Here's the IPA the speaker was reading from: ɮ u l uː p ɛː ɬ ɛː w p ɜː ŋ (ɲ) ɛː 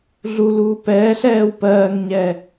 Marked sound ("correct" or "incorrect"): correct